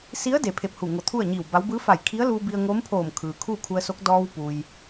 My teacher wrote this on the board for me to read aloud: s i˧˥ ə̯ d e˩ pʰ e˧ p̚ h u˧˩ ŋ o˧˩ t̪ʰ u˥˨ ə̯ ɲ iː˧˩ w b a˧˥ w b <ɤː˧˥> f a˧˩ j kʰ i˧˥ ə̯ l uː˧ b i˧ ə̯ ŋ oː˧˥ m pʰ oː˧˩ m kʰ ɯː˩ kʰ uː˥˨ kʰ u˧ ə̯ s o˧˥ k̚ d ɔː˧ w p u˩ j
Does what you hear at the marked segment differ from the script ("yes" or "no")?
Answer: yes